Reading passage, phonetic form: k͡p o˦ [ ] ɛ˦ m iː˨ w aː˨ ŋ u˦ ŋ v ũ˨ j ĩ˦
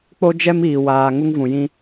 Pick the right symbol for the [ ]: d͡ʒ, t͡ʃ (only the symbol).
d͡ʒ